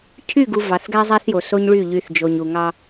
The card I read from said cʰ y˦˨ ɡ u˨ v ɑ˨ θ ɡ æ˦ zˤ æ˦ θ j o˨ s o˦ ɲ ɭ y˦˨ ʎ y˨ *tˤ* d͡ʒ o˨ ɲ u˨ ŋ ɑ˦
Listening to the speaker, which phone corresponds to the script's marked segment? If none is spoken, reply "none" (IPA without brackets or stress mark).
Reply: θ